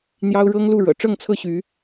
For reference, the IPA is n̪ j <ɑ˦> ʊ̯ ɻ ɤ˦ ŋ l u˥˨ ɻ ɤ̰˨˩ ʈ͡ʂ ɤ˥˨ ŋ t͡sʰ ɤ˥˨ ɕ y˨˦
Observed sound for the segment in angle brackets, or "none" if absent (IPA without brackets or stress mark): ɑ˦